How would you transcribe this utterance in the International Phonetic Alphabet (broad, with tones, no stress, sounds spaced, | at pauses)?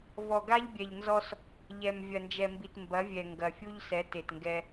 v ɔ˨ ɡ a˦ ʎ bʲ ɛ˨ ʎ n z ɔ˦ s | ʎ ɛ˨ m vʲ ɐ˨ n d͡ʒ ɛ˨ m b i˨ t m b ɐ˨˦ vʲ ɛ˨ ŋ ɡ ɐ˨ fʲ u˦ ʎ s ɛ˨˦ t e˨ t ŋ ɡ ɛ˦